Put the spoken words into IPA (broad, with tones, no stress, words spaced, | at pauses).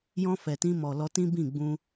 jɔ̃˧ fɛ˨tĩ˧mɔ˨lɔ˧ tĩ˦bĩ˦˨ ɡ͡bũ˧